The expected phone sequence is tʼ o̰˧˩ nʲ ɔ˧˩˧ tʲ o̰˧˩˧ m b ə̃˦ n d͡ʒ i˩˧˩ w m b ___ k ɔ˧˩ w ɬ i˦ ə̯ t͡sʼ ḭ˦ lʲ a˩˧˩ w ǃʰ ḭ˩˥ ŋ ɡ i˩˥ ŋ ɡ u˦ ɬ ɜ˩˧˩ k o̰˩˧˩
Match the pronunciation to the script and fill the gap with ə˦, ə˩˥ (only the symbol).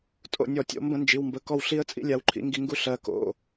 ə˩˥